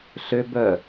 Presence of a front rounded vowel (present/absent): present